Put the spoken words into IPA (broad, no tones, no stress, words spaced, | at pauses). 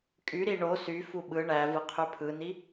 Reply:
kʼyɾi ɳo syfu ɓɯ ɳævɯ qʰypʰɯni